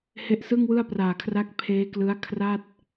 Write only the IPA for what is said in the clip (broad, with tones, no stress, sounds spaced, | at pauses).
h e˦˥ ʔ s ɯ˥˩ ŋ w ɯ˥˩ a̯ p r aː˨˩ kʰ r a˦˥ k̚ pʰ eː˦˥ k l ɯ˦˥ a̯ kʰ r a˥˩ t̚